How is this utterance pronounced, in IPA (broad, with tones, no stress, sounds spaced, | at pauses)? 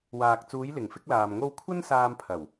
w aː˨ k̚ t͡s uː˨˧ j l ɪ˨˩ ŋ f ɪ˥ k̚ l aː˨ m ŋ o˧ w kʷʰ ɐ˥ n s aː˧ m pʰ ɐ˨˩ w